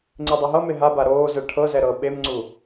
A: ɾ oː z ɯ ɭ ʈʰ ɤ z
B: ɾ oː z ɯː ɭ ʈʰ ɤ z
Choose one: A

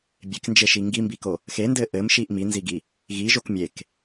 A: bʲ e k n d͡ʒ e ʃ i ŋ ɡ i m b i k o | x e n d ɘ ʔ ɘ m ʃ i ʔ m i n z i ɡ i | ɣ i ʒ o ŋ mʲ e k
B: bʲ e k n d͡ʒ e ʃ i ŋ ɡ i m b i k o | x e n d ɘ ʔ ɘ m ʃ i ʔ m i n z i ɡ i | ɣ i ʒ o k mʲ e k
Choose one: B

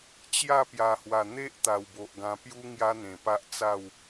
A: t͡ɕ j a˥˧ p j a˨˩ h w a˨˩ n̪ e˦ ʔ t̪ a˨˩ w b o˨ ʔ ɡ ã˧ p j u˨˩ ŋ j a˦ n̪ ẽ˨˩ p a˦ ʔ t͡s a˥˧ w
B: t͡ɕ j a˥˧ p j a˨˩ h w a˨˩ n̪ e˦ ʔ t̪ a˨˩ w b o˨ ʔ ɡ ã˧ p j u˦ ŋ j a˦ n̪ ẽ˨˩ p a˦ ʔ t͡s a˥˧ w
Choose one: B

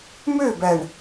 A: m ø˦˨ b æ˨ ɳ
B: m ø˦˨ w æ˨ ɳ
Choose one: A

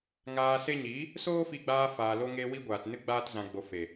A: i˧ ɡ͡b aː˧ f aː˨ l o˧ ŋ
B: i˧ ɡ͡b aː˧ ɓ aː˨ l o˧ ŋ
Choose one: A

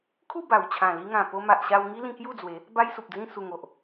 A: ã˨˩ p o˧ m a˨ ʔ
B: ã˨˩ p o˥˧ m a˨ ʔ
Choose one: A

